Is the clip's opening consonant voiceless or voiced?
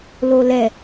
voiced